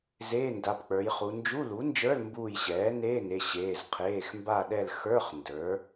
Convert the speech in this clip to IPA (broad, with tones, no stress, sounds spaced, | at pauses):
z eː˧˥˧ n d a˩˧˩ p k͡p ə˞˩˧ j χ u˩˧ n d͡ʒ u˧˥˧ l u˩˥ n d͡ʒ ə˞˧˥˧ l m b uː˦˨ j ɕ ɛː˩˥ n eː˧˥˧ n e˩˧˩ ɕ eː˩˧˩ z qʰ eː˩˧˩ x m b a˦˨ ɗ ɛ˦˨ l x ə˞˧˥˧ χ n d ə˞˩˥